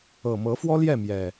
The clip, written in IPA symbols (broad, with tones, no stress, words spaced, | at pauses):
ɤ˨˩mɤ˨˦fwɔ˦ ljɛ˥˨ mjɛ˨˩